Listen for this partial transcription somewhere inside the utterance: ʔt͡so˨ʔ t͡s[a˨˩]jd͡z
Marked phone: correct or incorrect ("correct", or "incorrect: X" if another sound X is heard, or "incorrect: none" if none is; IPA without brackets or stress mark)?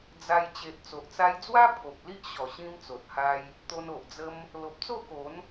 incorrect: a˧